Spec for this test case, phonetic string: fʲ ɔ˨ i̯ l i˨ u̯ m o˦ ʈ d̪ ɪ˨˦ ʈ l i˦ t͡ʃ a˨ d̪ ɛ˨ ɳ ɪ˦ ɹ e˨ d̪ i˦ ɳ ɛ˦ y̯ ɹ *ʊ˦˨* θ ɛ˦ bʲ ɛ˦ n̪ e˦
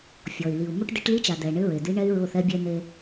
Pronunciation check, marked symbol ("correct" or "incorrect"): correct